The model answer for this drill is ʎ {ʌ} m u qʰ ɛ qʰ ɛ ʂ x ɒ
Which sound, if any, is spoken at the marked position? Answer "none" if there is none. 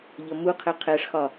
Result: ʌ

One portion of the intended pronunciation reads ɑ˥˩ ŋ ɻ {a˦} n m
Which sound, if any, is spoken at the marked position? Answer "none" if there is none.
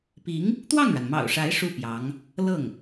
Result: a˩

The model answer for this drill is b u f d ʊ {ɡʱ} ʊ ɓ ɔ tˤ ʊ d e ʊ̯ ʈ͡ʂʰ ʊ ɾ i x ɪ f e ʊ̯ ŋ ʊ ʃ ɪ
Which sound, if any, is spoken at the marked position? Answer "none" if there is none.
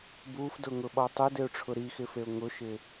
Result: ŋ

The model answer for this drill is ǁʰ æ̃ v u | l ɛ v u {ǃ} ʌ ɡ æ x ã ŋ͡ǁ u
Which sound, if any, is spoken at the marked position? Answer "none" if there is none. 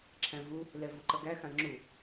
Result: ǃ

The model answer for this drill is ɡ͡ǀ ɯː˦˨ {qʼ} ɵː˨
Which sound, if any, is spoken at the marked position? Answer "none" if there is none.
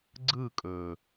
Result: kʼ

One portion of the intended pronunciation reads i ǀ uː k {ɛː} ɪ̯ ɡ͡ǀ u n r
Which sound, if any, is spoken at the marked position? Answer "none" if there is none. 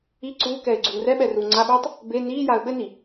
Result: ɛː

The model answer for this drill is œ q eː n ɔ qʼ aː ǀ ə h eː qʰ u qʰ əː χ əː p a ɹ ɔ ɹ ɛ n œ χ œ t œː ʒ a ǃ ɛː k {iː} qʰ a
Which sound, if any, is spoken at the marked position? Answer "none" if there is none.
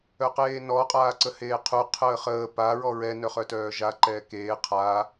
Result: eː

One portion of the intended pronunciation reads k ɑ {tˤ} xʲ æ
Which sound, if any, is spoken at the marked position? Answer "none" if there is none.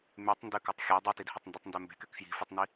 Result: tˤ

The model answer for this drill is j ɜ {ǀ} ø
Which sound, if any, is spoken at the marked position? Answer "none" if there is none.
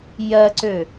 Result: ǀ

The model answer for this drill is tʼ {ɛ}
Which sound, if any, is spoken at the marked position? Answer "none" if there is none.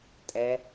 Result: ɛ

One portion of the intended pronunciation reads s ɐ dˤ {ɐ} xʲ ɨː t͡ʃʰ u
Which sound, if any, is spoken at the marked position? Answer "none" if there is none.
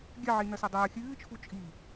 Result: ɐː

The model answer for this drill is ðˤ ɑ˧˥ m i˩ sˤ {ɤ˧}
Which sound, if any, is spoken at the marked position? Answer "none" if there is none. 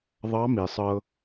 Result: ɤ˧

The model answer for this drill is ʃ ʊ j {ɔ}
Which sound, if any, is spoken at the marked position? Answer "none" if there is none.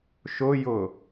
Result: ʊ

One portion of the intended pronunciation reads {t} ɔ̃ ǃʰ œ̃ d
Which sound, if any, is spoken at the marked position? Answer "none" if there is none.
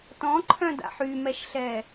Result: t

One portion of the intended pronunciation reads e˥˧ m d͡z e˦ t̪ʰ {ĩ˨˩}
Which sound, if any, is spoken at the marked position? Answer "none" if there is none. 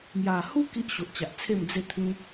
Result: ĩ˦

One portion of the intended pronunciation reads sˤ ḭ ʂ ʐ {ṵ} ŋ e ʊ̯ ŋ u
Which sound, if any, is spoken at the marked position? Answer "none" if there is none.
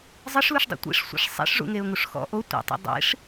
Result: ṵ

